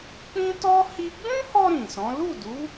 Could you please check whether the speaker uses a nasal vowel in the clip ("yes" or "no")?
yes